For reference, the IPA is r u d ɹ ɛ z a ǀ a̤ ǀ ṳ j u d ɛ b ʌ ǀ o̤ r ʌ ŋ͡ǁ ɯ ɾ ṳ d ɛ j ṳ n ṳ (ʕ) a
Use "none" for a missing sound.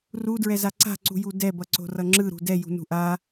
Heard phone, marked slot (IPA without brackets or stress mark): ʔ